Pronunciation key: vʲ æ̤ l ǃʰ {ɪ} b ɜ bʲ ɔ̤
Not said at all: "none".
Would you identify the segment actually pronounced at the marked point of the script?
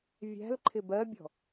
ɪ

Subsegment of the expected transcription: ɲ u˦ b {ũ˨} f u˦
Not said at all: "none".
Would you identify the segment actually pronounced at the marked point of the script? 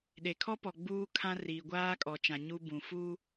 ũ˨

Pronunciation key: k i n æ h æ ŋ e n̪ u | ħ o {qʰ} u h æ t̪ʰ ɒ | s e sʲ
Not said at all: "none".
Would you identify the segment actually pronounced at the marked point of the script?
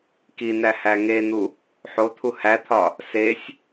t̪ʰ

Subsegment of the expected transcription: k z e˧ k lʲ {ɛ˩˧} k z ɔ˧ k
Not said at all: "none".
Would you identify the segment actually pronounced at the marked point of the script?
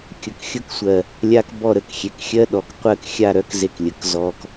ə˩˧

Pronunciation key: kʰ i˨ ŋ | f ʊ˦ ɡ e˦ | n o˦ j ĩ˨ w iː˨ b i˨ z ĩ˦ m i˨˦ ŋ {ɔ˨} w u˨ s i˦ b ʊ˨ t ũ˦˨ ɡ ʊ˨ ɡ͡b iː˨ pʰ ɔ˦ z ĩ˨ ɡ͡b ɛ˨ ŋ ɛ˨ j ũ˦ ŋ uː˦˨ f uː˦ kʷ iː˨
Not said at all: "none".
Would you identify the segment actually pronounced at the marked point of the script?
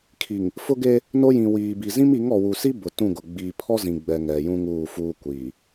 ɔ˨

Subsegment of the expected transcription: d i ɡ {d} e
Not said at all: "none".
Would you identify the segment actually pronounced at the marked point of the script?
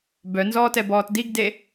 d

